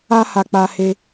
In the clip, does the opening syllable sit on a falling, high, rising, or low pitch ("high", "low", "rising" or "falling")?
high